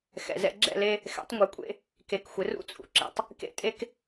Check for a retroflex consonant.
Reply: absent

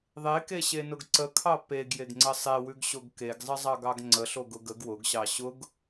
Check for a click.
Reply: present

